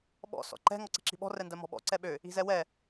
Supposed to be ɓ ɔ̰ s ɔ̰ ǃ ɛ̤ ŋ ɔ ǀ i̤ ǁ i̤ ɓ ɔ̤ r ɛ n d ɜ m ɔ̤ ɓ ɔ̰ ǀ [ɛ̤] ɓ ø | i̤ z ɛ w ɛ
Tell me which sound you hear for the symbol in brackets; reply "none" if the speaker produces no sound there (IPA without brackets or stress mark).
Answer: ɛ